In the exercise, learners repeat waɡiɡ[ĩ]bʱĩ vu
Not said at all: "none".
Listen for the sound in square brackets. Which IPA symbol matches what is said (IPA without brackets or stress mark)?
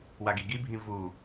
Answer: i